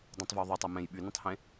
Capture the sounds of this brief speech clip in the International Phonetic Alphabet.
dˤ õ tˤ v o w ðˤ o tˤ œ m ẽ j ɓ y n ũ tˤ h ẽ

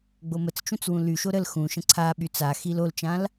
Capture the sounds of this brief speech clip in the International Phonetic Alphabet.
ɡ͡b o m ə t͡s t͡ʃ ũ t͡s w ũ l y ʃ o ɾ ə l x ũ ʃ ə̃ ǀʰ a ɓ y t͡s a x i l o l t͡ʃ ã l

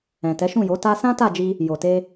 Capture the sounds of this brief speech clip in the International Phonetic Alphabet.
ɛ̃˨ t ɛ˨˦ ʃ ũ˦˨ j o˨˦ t a˧ s ã˦ t a˦˨ d͡ʒ i˧ | j o˨ t e˧

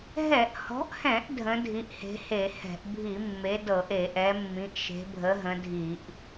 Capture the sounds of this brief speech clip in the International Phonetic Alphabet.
ɦ ɛ˧˩˧ ʔ h ɔ̤˨˦ ʔ h ɛ̃˧˩˧ ʔ dʱ ə̃˨˦ dʱ i˨˦ ʔ h e̤˨˦ h e˧˩˧ h ɛ̤˧˩˧ ʔ bʱ i˧˩˧ mː e˨˦ d ɤ˧˩˧ ʔ e˧˩˧ ʔ ɛ˨˦ mː ĩ˨˦ ʔ ʃ e̤˨˦ bʱ ə˨˦ ɦ ə̃˨˦ dʱ i˧˩˧ ʔ

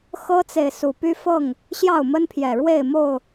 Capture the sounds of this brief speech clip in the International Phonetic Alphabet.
x ɤ˦ t͡s e˨ ɪ̯ s u˨˩ p y˦ f ɤ˥˨ ŋ | ɕ j ɑ˥˨ ʊ̯ m ə˦ n pʰ j ɛ˨˩ ɻ w e˥˨ ɪ̯ m o˥˨ ʊ̯

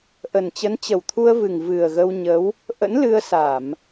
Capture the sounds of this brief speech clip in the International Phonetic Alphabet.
ʔ ə˨˩ n t͡ɕ ə˨˦ n t͡ɕ ə˨˩ w t̪ʰ u˧ ə̯ v ɨ˨˩ ŋ v ɨ˨˩ ə̯ ɣ ə˧ w ɲ ə˨˦ w | ʔ ə̰˧˥ n l ɨ˧ ə̯ s a˧˩˨ m

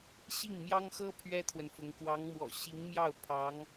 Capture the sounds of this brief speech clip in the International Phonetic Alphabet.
ɕ i˥˩ ŋ m j ɑ˥ ŋ x ɤ˥ pʰ ɥ ɛ˥ t̪ʰ w ə˨ n f ʊ˧˥ ŋ k w ɑ˧˥ ŋ m w ɔ̰˨˩ ɕ i˧˥ ŋ m j ɑ˥˩ ʊ̯ pʰ ɑ˧˥ ŋ

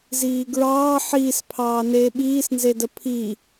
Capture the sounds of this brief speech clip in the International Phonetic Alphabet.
z iː ɡ ɹ ɑː ħ iː s pʰ ɑː n eː ɓ iː s n z e d ə pʰ i

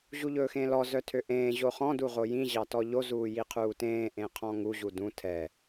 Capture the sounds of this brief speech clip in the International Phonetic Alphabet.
ʑ u ʎ ɵː x ẽː l ɔ z œ tʰ ø ʔ ẽː ʑ o χ ɔ̃ d u ʁ o j ĩ ʑ ɑ t ɔ ʎ o z uː j i qʰ uː t ẽː ʔ ẽ qʰ ɔ̃ ŋ u ʑ u d ũ tʰ ɛ

